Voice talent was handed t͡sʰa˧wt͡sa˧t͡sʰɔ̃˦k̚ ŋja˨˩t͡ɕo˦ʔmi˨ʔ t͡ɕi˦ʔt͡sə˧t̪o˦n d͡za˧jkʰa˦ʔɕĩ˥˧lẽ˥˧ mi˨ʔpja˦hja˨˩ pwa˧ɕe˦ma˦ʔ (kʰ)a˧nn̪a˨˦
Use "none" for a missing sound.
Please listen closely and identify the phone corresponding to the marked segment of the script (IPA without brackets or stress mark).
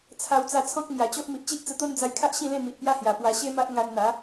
ŋ